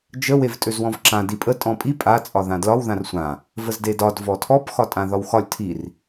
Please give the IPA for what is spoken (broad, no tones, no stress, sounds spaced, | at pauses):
d͡ʒ ə w e v tʼ ø z w ɔ̃ v ǁ ã d i pʼ ə tʼ ɔ̃ pʼ i pʼ a t͡sʼ ɒ ð ã d l ɒ w ð ã r sʷ ã | v ə z d e d ɒ d v ɔ tʰ ɔ p x ɒ tʼ ã ð ɒ w x ɒ lʲ tʰ i r